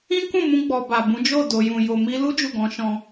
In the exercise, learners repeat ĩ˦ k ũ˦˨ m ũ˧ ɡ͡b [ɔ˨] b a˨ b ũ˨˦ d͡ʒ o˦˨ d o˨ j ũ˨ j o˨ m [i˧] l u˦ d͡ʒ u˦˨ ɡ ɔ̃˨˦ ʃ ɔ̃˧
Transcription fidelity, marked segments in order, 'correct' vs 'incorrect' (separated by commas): correct, correct